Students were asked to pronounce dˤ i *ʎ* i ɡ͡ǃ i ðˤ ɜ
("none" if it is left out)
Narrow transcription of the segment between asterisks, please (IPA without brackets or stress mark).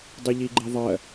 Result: ʎ